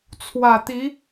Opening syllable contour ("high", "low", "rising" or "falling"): low